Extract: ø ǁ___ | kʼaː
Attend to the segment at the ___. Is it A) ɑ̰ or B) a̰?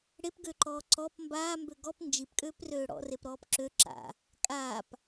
B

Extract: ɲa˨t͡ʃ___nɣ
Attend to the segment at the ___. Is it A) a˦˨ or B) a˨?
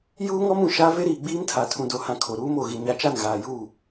A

